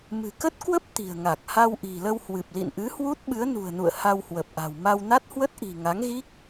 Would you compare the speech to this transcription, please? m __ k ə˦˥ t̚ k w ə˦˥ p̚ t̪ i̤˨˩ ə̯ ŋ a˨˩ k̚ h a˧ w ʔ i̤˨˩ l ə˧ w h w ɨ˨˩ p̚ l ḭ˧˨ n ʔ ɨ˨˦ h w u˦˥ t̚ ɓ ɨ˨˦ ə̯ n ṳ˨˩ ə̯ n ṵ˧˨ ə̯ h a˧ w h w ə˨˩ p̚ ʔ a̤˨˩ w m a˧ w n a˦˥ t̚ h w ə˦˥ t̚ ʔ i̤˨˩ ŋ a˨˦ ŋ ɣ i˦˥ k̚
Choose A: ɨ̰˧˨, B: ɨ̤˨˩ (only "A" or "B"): B